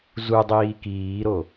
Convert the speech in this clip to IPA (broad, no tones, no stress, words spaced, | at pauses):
zudˤiː kiːɾo